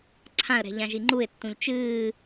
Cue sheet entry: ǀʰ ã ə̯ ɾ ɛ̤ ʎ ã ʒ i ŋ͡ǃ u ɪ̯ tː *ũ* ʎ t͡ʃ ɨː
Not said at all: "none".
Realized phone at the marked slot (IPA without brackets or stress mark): ũ